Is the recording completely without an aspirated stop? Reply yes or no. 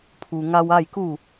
no